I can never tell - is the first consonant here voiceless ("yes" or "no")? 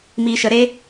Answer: no